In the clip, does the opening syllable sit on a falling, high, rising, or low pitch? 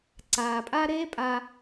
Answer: low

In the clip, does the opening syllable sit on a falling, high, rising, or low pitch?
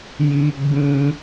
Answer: high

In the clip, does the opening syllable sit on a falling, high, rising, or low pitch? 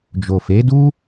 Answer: low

